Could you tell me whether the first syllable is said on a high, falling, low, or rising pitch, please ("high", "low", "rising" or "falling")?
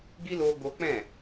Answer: high